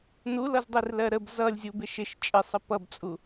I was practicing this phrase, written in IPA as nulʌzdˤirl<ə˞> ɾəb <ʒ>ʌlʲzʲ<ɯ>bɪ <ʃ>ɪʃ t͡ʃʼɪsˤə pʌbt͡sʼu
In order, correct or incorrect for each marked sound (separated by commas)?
incorrect, incorrect, incorrect, correct